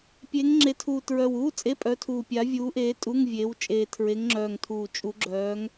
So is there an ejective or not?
yes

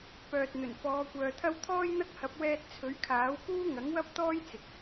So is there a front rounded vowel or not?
yes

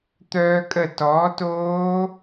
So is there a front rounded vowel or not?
yes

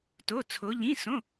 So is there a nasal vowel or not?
yes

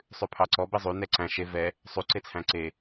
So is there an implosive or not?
no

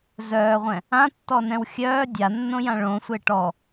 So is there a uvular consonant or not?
yes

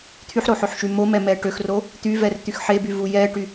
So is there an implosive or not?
no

